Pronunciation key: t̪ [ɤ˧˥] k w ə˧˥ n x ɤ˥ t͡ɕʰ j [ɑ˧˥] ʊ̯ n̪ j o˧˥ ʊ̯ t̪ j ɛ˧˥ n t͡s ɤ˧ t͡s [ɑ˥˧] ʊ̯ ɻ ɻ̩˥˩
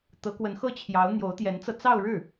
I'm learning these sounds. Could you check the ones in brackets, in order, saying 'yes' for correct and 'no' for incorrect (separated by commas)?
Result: yes, yes, yes